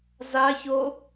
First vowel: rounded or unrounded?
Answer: unrounded